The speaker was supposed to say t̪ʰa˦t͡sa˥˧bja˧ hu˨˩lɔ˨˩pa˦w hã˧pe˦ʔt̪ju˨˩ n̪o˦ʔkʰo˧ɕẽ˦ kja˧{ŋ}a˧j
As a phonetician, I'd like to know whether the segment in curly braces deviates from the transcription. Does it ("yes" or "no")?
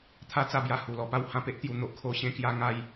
no